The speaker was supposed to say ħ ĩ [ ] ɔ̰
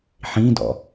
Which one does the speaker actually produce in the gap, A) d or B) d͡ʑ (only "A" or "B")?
A